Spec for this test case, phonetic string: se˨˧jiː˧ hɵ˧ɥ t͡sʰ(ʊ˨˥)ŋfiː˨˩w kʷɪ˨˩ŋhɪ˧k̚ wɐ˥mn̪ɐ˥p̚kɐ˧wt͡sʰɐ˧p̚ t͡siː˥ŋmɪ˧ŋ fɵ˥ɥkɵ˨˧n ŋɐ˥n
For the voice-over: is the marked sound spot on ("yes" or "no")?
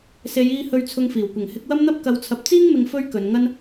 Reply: no